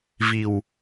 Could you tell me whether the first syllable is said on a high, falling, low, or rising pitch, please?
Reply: low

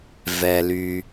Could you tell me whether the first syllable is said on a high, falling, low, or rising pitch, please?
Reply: low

